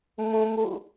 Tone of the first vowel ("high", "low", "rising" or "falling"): high